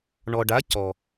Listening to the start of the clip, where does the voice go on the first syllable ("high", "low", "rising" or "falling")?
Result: low